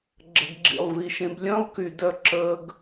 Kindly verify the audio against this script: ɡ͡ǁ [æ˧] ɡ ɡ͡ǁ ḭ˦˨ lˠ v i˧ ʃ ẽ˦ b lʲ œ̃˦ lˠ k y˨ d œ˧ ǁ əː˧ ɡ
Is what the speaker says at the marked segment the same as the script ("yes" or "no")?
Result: no